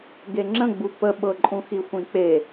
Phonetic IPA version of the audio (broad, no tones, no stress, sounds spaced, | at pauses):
ɡ e ŋ͡ǁ ə̃ ɡ͡b u p ə ɓ ɤ ǃʼ ũ x i xʷ ĩ k͡p e